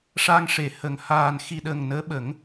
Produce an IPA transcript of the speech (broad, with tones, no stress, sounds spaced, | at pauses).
ʂ a˧ ŋ ʂ e˨˩˦ h ə˨˩ ŋ h aː˨˩ n x i˨˩ ɗ ə˨˩ ŋ n əː˧˥ ɓ ə˨˩˦ ŋ